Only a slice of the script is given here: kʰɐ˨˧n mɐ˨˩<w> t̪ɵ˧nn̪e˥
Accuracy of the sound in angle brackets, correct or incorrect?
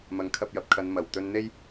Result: correct